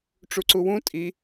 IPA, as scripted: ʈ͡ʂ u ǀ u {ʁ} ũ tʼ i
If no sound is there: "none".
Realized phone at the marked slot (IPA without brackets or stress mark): w